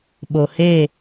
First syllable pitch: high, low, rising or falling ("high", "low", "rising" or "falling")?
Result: low